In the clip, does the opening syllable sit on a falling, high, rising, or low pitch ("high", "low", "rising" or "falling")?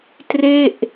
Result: falling